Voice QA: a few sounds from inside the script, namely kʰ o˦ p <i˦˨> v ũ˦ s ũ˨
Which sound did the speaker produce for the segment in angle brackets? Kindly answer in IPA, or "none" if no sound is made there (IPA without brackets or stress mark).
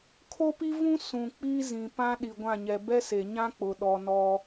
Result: i˦